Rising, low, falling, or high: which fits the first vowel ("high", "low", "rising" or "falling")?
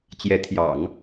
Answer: rising